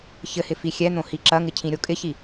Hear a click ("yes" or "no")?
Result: yes